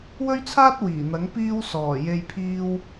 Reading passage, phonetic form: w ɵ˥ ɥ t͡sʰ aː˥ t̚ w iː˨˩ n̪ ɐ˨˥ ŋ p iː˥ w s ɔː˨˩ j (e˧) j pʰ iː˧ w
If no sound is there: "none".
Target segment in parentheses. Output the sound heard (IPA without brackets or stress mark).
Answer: e˧